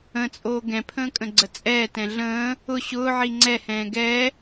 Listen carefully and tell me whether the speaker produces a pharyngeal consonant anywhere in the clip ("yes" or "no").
yes